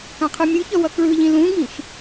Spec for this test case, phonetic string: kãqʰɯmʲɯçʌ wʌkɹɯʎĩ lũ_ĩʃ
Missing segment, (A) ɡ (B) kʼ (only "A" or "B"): A